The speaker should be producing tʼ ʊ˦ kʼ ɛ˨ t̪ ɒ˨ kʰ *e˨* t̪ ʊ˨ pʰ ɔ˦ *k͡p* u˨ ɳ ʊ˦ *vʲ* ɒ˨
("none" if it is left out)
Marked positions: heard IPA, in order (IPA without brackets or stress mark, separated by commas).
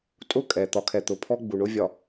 ɛ˨, ɡ͡b, vʲ